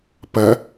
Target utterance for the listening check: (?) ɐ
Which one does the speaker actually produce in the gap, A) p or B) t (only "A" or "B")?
A